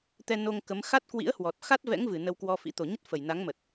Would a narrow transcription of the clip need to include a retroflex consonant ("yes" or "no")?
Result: no